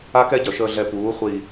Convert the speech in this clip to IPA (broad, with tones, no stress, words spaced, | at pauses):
a˦kɛ˦ɟœ˨ʃəː˧ ɮɛ˧ puː˨˦ χʷi˨